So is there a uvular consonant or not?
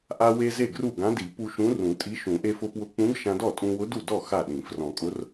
no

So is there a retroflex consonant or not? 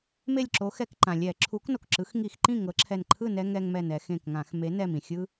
no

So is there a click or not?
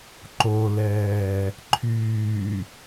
yes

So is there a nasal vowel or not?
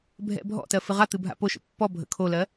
no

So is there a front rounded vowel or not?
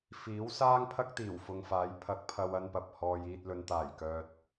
yes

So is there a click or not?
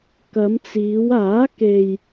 no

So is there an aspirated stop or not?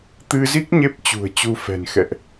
no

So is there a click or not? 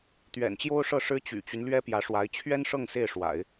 no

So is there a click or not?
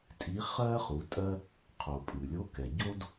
no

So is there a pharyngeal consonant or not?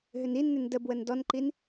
no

